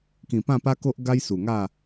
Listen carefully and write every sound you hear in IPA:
kĩ˨˩pã˥˧pa˦ko˦ʔ ɡa˦jsu˨˩ŋa˥˧

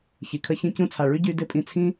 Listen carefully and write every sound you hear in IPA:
çi˨kʰə˦çĩ˦ cũ˧t͡sʰa˨ɭy˦ ɟy˧ dɪ˦˨pʼĩ˧ t͡sʰĩ˦

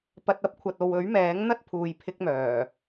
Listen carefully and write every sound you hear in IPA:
pɐ˧t̚ ɐ˥p̚kʷʰɐ˨t̚ o˧w ɵ˨˥ɥ mɛː˨˥ŋ n̪ɐ˥t̚pʰuː˨jpʰɪ˧k̚ mœː˨˩

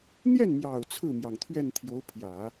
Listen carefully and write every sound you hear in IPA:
n̪jɛ˥˩nmjɑ˨˩ʊ̯ t͡sʰɹ̩˥˩mjɑ˩ŋt̪ʰɥɛ˥˩n t̪ʰjo˧˥ʊ̯pʰjä˨˩˦

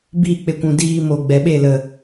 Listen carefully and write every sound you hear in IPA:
biː˦˨k͡pe˧kʷũ˨ diː˧mo˨ ɡ͡bɛ˨ɓe˦˨lə˨

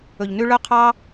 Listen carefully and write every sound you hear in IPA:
ɵ˨ʎ nʉ˧ɭœ˦qʰɑ˦

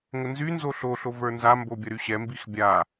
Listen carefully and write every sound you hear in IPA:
ŋənzynzo ɬoɬo və˞nzambo bʲɐɾyɕɛmbix bʲa

